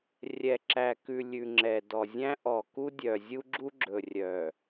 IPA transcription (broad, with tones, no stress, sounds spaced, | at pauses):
rʲ ɛ˨ ǁ æ˨ k ʉ˨ lʲ ʉ˨ ŋ͡ǁ ɛ˨ d ɔ˨ zʲ æ̃˦ ʔ ɔ˨ k u˦ dʲ œ˨ zʲ u˦ ɡ͡ǁ u˦ ɡ͡ǁ ɵ˨ rʲ œ˨